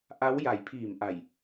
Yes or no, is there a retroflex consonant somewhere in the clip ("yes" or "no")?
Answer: no